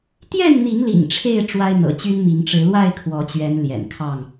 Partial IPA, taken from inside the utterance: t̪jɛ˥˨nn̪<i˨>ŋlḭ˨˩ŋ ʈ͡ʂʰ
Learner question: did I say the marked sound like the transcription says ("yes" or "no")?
no